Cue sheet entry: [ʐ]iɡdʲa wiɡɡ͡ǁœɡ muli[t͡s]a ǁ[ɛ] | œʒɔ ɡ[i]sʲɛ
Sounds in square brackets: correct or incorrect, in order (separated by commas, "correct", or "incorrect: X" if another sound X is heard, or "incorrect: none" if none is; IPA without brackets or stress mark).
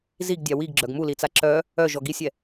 incorrect: z, correct, incorrect: œ, correct